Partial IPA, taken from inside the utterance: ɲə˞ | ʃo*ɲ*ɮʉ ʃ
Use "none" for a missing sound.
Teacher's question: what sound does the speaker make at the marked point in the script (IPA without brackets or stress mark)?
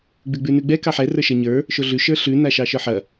none